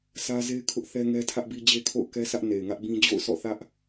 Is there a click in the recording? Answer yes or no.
no